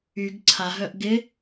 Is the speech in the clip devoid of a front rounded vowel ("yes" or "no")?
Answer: no